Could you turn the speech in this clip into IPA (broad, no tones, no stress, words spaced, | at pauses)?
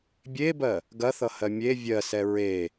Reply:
bʲebɜ | ɡɐθʌhɜ mʲe vʲɜ sɛɹe